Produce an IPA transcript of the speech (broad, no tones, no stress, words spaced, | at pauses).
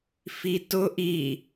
fitʊ ʔi